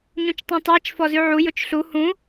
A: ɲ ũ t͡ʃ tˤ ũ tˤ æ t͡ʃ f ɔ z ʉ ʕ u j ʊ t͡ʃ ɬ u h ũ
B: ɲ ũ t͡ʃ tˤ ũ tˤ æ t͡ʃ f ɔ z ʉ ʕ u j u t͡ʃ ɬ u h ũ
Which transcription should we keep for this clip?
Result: A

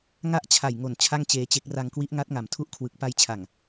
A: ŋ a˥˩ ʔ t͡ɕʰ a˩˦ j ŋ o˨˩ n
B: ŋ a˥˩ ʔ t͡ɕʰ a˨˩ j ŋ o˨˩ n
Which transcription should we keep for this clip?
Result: B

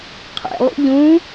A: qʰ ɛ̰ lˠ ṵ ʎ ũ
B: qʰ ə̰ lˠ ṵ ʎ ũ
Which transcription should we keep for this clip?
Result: A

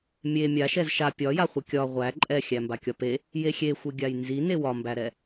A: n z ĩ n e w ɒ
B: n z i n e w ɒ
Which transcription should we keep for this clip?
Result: B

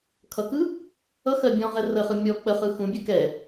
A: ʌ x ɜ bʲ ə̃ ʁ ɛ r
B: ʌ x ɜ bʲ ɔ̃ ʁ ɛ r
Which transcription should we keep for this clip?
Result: B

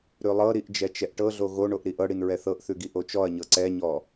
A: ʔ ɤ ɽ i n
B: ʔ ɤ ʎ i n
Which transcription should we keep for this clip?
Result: A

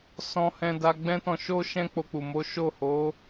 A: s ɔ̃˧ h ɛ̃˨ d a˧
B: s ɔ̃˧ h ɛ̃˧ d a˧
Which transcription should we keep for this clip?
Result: B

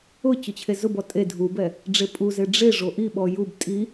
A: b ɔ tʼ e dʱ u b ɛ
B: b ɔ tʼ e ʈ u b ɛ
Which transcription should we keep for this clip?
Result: A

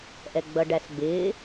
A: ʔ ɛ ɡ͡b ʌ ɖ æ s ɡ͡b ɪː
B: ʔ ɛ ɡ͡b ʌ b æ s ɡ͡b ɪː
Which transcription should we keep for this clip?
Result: A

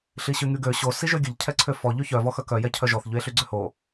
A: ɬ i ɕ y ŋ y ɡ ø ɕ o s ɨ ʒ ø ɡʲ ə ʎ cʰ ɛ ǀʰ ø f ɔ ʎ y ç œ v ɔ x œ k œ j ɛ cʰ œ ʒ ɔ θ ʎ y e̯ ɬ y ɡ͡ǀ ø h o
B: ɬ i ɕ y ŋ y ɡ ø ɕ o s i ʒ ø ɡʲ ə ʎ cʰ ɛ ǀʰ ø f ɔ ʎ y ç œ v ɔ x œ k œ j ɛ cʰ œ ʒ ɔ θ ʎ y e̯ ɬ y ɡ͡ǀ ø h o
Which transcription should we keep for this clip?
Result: B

